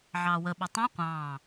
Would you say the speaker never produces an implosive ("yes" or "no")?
no